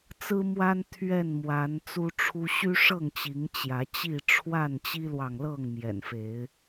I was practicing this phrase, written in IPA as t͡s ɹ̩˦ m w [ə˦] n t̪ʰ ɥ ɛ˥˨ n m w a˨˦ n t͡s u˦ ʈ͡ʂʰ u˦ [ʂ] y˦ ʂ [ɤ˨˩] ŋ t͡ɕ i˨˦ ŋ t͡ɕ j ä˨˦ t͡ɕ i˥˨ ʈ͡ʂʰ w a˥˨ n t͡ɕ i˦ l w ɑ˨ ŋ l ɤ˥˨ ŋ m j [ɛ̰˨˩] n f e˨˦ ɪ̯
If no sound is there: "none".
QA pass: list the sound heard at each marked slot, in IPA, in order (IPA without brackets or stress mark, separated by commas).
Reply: a˦, ɕ, ɤ˥˨, ɛ̰˨˩